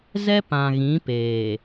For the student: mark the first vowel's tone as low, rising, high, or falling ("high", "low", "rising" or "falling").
high